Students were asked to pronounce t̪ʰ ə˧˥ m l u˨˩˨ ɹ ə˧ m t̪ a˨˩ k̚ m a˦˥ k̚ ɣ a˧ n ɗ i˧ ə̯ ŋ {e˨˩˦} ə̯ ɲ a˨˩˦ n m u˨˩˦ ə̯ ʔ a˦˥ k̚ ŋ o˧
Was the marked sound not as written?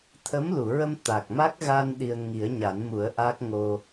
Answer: yes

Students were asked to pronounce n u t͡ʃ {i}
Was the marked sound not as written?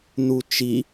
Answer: no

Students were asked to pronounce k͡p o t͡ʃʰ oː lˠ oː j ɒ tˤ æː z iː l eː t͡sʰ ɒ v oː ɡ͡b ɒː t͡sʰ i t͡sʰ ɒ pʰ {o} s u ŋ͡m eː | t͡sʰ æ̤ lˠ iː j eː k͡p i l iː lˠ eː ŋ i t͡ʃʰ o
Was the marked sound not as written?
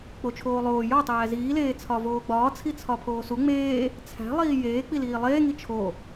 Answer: yes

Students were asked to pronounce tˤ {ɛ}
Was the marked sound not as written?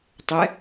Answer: no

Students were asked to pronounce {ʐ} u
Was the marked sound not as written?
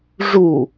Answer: no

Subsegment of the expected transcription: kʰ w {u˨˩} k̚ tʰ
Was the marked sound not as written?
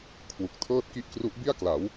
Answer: no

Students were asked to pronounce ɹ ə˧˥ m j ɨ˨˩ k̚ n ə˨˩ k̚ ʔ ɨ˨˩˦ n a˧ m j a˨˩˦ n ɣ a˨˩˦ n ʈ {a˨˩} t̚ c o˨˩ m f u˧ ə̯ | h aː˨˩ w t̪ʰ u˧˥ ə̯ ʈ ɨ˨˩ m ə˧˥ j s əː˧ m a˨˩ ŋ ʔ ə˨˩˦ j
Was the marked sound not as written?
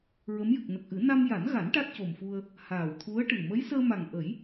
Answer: yes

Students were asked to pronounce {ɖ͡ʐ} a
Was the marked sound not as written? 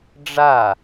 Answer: no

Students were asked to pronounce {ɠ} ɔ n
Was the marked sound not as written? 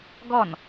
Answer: yes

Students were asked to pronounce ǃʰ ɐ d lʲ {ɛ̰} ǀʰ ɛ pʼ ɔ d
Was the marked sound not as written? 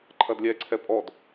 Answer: yes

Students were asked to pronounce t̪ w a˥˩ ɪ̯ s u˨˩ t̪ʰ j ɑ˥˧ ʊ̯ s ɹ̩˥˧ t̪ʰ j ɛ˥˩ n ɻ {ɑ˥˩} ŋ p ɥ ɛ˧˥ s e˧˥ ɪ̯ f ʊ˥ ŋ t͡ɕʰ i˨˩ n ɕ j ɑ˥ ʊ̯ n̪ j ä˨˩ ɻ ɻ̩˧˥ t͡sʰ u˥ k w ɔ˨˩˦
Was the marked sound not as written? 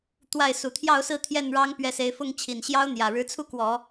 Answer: yes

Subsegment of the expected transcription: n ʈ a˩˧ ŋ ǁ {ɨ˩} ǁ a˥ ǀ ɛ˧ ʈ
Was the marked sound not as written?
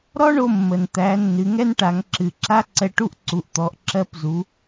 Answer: no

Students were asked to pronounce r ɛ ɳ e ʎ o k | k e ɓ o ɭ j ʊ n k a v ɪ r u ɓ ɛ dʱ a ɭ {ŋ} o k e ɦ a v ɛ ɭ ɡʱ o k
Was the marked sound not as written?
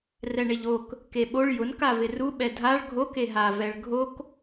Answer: yes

